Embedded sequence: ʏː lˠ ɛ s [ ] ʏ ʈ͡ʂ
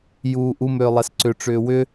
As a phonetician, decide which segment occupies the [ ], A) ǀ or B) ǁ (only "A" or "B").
A